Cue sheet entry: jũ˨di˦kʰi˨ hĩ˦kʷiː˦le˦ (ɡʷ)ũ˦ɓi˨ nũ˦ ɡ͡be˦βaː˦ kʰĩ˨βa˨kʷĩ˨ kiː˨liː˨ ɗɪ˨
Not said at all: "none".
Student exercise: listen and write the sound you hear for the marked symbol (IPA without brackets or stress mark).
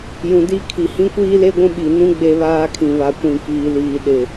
ɡʷ